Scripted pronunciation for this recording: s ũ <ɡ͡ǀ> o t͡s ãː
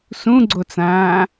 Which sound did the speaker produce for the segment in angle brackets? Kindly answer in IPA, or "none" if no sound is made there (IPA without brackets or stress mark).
ɡ͡ǀ